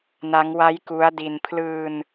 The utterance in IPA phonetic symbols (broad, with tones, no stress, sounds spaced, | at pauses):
n a˦˥ ŋ w a˦˥ j k u˦˥ a̯ d i˧ n pʰ l ɯː˧ n